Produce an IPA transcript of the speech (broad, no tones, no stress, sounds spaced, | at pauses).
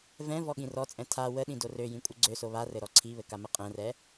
v ɛ̃ v ɔ ɠ ĩ r ɔ t͡sʼ ɛ̃ tʰ a w ə ɗ ĩ d o r ø j ĩ kʷʼ ɘ ɡ͡ǀ ø s o β a r ɘ ɾ ɔ ǀʰ i β ɘ k a m ə qʼ ɛ̃ r ɛ